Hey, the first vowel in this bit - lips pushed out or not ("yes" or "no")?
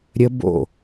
no